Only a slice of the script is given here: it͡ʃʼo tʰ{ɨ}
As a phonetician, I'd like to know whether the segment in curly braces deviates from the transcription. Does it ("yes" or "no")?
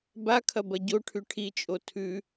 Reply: yes